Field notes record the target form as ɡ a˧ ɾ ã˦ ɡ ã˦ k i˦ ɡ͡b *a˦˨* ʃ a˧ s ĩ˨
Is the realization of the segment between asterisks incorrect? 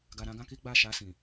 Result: no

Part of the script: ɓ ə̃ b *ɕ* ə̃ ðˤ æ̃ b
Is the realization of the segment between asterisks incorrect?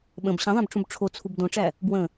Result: no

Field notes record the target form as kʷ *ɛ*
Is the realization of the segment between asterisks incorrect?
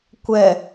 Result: no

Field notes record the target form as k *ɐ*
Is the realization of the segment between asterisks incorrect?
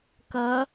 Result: no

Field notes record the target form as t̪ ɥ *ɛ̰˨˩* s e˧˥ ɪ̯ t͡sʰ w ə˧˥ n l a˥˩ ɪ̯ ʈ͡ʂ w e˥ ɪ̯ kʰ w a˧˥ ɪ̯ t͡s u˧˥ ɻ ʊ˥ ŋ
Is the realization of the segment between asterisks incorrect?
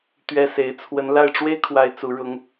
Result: yes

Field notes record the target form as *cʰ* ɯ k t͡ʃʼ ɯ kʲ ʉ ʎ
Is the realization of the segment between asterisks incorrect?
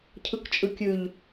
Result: no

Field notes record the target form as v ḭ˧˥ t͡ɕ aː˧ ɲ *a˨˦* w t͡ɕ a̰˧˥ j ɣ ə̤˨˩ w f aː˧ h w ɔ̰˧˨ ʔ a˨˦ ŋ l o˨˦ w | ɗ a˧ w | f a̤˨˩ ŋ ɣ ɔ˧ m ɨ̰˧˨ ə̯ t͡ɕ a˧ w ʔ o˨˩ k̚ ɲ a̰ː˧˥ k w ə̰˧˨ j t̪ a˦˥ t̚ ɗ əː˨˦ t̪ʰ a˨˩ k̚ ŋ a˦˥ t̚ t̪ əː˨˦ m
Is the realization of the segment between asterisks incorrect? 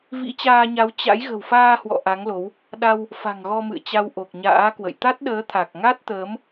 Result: no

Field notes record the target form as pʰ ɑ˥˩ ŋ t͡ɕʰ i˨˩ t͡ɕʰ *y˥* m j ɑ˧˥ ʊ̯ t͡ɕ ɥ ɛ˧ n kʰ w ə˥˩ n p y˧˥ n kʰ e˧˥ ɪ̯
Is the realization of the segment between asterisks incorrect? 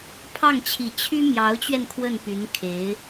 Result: no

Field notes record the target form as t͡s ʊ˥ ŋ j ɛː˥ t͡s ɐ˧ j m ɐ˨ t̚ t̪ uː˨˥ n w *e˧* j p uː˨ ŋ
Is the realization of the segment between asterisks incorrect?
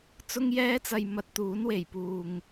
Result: yes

